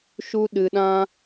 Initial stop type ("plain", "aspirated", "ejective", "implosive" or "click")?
implosive